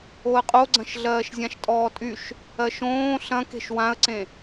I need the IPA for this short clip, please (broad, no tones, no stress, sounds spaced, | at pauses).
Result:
o ə̯ qʼ o ɡ͡ǀ ɐ̃ ʃ ɮ ɜː ʃ zʲ ã ʃ tʼ ɔː tʼ y ʃ | ɜ ʃ õː ɬ ɐ̃ k e̤ ʃ w ã ə̯ ǀ ẽ